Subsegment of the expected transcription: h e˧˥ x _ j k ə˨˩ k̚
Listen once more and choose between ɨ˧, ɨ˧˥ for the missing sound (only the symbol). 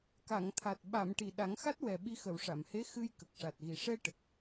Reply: ɨ˧